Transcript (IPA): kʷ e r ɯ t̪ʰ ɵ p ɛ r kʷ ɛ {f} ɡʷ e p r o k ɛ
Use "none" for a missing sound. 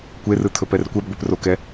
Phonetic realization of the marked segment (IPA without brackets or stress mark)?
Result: b